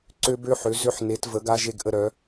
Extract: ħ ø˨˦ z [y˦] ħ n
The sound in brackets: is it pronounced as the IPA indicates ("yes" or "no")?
no